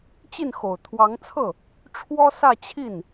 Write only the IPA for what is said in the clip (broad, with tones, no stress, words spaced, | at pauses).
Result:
t͡ɕi˥˩nxo˨˩ʊ̯t̪ʰwɑ˧˥ŋt͡sʰɤ˥˩ | ʈ͡ʂʰwɔ˥ sä˥˧t͡ɕʰi˥˩n